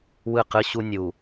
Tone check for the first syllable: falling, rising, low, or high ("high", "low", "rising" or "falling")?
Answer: falling